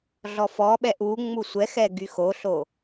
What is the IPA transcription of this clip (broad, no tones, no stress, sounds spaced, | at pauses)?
ɮ ɔ f ɔ ɓ ɛ ʔ u ŋ͡m u sʷ ɛ x ɛ ɡ y x o ɬ o